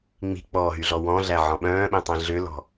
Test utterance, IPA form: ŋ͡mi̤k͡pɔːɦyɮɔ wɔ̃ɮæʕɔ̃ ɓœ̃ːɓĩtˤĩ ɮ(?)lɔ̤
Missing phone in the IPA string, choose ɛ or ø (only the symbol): ø